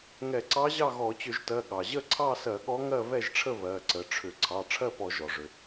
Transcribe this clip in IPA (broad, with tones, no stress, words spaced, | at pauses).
ŋɛ˧˩˧ǀɑ˧˥ʑɑ˥˨ɣɔ˧˩˧ t͡ɕʏ˧˩˧ʒtɜ˩˧˩ ɠɑ˩ʑə˥˨ ǀʰɑ˥˨sɜ˧˩˧ ɠɔ˧˥ŋɜ˥˨ βɛ˥˨ʒʈ͡ʂʰə˥˨ βɜ˩˧˩ǀə˩˧˩ʈ͡ʂʰʏ˧˩˧ ǀʰɑ˩˧˩ ʈ͡ʂʰɜ˥˨pɔ˧˩˧ʒɔ˩ ʐʏ˩